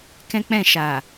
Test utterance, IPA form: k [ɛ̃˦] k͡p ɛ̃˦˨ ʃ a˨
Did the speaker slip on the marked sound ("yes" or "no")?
no